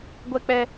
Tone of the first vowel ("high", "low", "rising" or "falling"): high